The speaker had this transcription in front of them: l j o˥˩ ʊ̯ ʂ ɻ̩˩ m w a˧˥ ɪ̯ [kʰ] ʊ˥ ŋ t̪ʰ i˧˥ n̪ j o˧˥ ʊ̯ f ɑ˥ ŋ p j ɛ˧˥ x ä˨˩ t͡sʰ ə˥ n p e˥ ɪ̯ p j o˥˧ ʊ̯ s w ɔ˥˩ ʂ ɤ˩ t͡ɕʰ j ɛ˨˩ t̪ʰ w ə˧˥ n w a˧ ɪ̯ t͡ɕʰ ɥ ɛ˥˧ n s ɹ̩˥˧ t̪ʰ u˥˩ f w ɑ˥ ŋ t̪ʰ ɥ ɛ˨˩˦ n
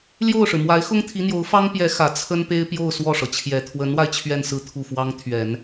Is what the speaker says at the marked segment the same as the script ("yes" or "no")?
no